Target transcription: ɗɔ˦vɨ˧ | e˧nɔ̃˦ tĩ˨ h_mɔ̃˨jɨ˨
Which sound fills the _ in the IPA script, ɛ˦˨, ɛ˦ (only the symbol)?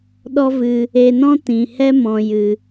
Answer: ɛ˦